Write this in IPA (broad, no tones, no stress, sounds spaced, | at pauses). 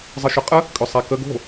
zˤ ɨ ʃ ʏ qʼ ə | kʼ ʏ sˤ ɛ k ə ɡ o̤